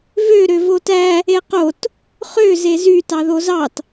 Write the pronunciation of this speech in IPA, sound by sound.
v ø ɾ ø v o t æ | e q o t | χ ø z e z y t ɑ ð o z ɑ t

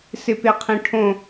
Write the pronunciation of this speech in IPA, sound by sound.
s ɪ p e qʰ ĩ ʈʰ õ

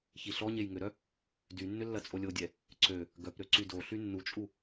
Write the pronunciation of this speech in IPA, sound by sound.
ç i ɬ ɔ ɲ e j ŋ ʏ ɾ œ | d y nː ʏ lː ɐ t͡sʼ o lʲ o dʲ ɛ | ǀ ø | ɡ œ p ɾ ø ǀ y d o ɬ y nː u t͡ʃʼ u

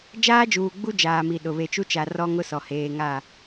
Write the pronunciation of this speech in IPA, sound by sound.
d͡ʒ aː˦ d͡ʒ uː˨ ɡ͡b u˦ d͡ʒ aː˨ m i˨ ɗ ʊ˨ β e˨ t͡ʃ u˦ t͡ʃ a˨ r ɔ˦ ŋ ʊ˦ s ɔ˨ h eː˨ ŋ a˦˨

